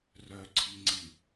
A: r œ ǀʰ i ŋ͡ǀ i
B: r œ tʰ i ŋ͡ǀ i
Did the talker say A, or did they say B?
A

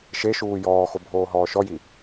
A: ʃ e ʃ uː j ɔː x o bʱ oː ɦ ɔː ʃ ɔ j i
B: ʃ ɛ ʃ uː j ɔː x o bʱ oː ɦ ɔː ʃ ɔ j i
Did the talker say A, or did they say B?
A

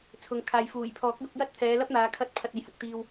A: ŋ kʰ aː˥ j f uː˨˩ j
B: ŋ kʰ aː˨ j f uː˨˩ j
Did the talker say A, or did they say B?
B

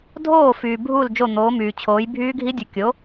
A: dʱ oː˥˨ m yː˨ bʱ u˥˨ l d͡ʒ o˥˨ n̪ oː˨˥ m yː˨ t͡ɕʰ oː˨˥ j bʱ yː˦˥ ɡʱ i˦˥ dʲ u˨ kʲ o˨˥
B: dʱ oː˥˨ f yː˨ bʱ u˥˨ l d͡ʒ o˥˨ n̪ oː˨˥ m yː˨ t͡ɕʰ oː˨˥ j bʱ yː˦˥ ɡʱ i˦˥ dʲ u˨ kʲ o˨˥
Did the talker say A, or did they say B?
B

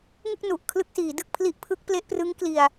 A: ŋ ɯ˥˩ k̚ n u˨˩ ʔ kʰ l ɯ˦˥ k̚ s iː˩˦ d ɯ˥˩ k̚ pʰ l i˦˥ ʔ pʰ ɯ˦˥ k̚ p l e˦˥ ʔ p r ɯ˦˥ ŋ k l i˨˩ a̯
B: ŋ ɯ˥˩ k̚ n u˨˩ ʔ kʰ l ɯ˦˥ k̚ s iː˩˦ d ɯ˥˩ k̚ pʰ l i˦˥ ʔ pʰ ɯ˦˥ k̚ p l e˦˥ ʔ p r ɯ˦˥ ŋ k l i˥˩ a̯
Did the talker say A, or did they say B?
A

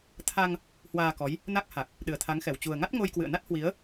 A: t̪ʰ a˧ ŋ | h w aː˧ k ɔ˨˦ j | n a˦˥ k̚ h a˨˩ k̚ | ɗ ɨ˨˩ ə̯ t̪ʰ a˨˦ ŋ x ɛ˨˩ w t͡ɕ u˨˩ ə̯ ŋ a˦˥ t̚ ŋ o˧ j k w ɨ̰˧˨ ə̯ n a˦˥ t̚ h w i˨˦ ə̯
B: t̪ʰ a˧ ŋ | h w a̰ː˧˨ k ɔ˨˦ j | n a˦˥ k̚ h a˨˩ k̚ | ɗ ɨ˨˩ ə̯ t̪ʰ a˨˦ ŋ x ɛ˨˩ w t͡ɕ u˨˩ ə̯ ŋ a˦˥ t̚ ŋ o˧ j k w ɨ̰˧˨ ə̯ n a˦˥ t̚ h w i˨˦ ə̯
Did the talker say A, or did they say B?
A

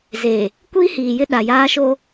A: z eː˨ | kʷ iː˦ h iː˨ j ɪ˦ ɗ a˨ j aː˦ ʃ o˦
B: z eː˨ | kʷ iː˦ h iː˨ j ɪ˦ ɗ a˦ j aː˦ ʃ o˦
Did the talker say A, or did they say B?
A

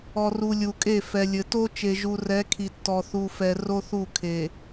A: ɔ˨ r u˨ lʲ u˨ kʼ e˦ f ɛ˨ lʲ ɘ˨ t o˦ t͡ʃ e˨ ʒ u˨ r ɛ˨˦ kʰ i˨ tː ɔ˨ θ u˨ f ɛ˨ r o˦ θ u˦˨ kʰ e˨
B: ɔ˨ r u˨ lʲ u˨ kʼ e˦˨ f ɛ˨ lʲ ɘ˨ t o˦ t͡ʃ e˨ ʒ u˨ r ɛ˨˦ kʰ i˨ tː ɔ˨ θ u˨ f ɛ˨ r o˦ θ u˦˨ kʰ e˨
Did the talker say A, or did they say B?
B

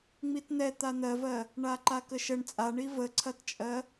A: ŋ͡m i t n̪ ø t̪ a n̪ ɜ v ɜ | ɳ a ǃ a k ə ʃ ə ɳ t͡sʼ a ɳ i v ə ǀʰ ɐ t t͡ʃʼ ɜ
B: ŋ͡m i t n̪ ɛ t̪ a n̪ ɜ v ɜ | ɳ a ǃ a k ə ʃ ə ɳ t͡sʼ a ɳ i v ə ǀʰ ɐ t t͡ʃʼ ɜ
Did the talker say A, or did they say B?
B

